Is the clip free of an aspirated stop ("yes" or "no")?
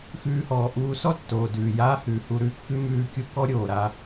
yes